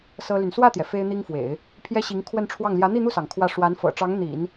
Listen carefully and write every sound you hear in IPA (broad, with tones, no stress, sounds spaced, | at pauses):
s ɤ˥ l y˨ n s w ä˥˩ t̪ j ɛ˩ f e˥ ɪ̯ n̪ i˥ ŋ f w ḛ˨˩˦ ɪ̯ | pʰ j ɛ˥ ɕ i˧˥ ŋ kʰ w ə˥˧ n ʈ͡ʂʰ w ɑ˥˩ ŋ l j ä˧˥ n̪ i˥˧ n̪ u˥˩ s ɑ˩ ŋ kʰ w ä˥˩ ʂ w a˧˥ n f ɤ̰˨˩ ʈ͡ʂ ɑ˧˥ ŋ n̪ ḭ˨˩˦ n